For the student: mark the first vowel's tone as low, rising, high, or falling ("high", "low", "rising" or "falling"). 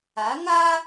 rising